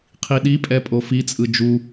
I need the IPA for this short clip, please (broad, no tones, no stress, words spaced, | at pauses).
qʰiɗipʼɛ pʼofit͡sʼɯ d͡ʒu